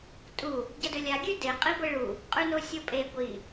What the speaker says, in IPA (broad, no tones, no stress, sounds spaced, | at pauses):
tʼ u | ɟ ɐ d ɵ lʲ a ɡʲ ʉ d e qʼ i ɡʷ e ɭ u | qʼ ʉ n o sʲ o pʼ e ɡʷ i